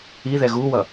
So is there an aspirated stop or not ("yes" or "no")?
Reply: no